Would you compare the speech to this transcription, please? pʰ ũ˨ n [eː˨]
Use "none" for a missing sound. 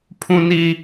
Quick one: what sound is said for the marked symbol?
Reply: iː˨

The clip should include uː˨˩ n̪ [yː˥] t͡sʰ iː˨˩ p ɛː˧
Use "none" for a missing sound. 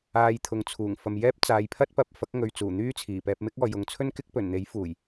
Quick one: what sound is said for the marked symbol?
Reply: yː˥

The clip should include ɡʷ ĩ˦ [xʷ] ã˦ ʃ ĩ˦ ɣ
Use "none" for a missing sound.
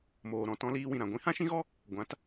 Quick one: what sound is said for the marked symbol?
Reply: h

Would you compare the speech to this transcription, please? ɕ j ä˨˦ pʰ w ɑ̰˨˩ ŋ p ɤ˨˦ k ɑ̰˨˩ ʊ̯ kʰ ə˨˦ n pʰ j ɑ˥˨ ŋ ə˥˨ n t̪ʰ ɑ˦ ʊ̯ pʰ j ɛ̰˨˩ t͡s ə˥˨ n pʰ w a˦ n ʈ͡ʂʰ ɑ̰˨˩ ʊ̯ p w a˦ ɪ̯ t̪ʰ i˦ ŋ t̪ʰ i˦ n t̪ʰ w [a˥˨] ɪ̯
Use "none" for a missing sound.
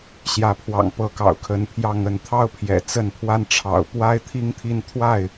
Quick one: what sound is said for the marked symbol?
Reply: a˥˨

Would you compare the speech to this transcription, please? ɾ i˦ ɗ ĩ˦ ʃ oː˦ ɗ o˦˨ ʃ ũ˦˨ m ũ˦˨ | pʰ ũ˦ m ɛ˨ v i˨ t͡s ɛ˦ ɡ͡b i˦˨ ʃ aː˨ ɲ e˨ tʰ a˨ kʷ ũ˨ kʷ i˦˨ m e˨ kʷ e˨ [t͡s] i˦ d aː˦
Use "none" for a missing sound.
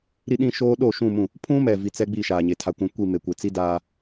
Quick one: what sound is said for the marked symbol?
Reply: t͡s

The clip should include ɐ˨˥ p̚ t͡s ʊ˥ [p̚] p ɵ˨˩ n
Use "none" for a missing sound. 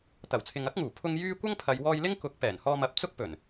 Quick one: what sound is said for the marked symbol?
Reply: k̚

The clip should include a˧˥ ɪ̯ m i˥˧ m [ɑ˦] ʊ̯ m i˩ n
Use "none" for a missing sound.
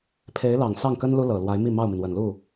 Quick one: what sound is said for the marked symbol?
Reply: ɑ˥˩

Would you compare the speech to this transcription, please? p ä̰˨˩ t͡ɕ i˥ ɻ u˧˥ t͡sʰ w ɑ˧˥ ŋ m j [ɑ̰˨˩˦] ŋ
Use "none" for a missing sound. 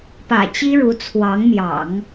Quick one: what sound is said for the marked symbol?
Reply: ɑ̰˨˩˦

